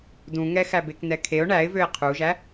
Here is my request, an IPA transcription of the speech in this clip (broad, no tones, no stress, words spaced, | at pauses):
dũŋɛ xæbeknɛkʰeʊ̯ ɳæɪ̯vøɪ̯ qʰuʒæ